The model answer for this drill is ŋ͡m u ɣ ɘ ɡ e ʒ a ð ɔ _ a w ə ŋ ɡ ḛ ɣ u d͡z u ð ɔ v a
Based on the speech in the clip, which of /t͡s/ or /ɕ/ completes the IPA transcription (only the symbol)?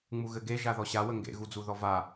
ɕ